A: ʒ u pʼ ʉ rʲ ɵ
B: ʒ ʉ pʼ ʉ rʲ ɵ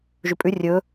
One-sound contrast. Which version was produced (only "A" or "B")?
B